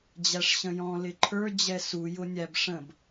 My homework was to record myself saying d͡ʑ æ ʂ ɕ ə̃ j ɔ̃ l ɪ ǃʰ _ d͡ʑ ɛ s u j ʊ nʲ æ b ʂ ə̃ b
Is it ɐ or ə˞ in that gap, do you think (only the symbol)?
ə˞